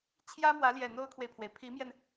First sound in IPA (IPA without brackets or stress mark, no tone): t͡ɕʰ